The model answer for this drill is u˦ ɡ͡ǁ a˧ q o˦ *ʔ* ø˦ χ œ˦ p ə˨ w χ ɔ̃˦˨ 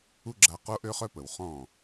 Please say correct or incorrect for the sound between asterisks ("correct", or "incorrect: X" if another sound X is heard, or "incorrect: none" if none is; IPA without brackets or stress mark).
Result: correct